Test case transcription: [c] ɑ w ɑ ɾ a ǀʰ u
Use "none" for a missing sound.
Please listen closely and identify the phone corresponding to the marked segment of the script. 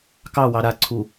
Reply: k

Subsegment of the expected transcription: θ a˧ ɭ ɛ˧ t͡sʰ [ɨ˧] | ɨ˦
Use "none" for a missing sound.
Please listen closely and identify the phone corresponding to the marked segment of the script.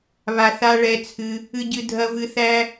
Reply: ɨ˧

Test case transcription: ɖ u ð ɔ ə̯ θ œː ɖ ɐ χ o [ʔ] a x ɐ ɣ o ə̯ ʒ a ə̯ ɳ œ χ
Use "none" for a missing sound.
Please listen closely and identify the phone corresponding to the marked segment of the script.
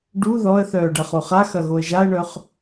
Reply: χ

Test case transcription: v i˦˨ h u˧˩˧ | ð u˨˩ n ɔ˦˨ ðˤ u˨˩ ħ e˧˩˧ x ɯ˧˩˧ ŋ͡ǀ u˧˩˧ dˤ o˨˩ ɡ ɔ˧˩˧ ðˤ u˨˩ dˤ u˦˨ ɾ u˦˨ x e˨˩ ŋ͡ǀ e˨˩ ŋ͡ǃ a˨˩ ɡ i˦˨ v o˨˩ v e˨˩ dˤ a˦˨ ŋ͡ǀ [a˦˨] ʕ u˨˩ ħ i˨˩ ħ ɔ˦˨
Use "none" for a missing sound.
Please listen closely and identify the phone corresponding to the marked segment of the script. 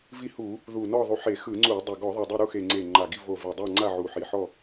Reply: a˦˨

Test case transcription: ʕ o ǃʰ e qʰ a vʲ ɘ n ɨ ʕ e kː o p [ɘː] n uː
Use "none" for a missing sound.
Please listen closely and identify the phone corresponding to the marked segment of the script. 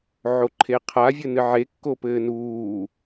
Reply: ɘː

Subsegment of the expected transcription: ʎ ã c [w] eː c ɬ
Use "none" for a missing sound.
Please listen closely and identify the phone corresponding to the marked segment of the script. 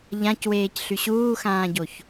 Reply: w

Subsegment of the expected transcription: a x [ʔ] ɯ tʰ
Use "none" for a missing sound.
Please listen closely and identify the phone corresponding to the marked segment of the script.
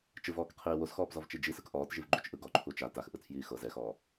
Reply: ʔ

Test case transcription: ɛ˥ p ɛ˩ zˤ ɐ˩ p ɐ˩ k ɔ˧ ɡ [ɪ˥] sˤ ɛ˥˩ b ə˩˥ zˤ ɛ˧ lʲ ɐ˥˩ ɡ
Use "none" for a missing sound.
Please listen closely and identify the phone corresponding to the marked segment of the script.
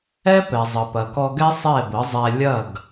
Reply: ɛ˥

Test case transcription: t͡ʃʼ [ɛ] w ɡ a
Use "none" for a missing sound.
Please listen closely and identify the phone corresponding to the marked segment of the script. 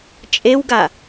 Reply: e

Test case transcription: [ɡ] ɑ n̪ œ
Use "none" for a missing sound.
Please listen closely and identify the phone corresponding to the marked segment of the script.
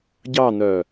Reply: ɟ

